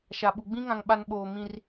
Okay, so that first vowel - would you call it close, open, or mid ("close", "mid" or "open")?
open